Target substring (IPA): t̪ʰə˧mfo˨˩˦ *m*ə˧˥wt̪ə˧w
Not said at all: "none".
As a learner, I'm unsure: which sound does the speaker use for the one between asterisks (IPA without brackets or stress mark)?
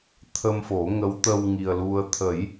ŋ